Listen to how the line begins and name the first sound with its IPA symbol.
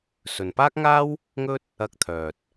s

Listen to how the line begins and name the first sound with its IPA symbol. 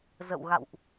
z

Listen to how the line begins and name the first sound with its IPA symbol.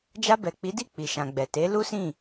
d͡ʒ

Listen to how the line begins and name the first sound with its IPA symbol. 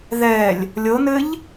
ð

